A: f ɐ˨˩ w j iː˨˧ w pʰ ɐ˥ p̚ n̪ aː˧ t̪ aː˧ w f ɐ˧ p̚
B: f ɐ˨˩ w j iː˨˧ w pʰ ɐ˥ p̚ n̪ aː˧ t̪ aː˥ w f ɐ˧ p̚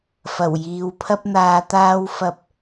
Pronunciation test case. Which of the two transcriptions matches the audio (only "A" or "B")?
B